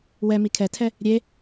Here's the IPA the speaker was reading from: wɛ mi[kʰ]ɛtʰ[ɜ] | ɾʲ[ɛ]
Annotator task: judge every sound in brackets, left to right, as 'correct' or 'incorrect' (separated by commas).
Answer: correct, incorrect, incorrect